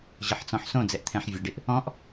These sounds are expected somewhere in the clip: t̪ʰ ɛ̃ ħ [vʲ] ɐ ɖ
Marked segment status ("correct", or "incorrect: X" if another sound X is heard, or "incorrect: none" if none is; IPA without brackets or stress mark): correct